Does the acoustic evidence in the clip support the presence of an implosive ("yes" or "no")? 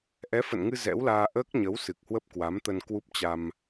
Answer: no